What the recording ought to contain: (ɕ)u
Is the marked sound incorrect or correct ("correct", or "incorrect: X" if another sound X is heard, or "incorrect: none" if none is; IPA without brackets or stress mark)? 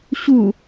correct